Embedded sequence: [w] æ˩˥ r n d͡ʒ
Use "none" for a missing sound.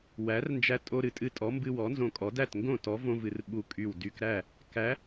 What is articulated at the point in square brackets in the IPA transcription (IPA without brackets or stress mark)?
w